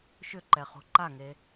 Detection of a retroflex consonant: absent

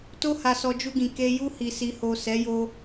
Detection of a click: absent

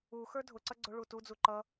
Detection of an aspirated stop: absent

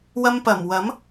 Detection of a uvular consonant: absent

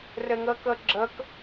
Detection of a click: present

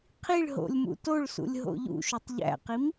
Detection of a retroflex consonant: present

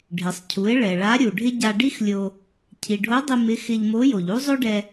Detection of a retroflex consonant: present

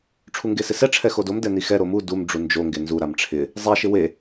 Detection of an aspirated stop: present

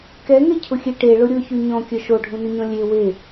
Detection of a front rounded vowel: present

